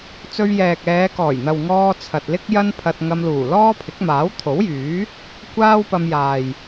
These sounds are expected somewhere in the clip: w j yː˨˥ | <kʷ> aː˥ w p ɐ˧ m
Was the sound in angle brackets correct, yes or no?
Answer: yes